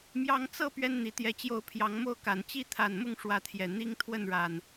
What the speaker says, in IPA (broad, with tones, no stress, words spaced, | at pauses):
mjɑ˨˦ŋt͡sɤ˥˨ pɥɛ˦nn̪i˨˩t̪jɛ˨˦t͡ɕjo˥˨ʊ̯ pʰjɑ˨˦ŋmo˥˨ʊ̯ka˨˩n t͡ɕi˥˨t̪ʰa˨˩nmʊ˥˨ŋ ʂwä˨˦t̪ʰjɛ˨˩ n̪i˦ŋ t̪ʰwə˥˨nɻa˨˩n